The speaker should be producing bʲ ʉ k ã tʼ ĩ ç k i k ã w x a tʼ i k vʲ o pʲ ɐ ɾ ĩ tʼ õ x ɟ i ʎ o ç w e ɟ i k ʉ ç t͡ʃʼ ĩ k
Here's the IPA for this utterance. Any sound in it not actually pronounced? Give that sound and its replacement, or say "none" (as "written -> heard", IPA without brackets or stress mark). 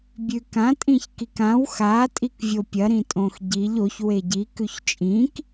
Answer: none